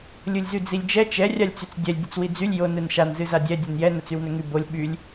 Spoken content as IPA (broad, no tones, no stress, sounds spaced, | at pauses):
lʲ ɯ lʲ z y d͡z i lʲ d͡ʒ ɛ t͡ʃ ɛ rʲ a lʲ t͡s y t͡s dʲ ɛ lʲ dʲ ə t͡s w i d͡z y lʲ j o n ɯ n ʃ a n z ɨ z a dʲ ɛ dʲ ə n j ɛ n ə t͡s y w n ɵ ŋ y b o lʲ ɓ y lʲ